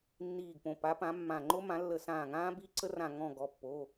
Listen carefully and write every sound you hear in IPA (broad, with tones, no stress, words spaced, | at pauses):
nːiː˧˩ɡpõ˩˧˩ pa˨˥pã˨˥mːã˧˩ ŋ͡ǃo˦˥mã˨˥lːə˧˩˧ sãː˧˩ŋãː˦˥ bi˦˥ǀə˦˥ rã˧˩ŋɔ̃˧˩ ɡɔ˩˧˩pːo˩˧˩